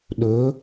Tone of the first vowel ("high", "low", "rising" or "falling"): rising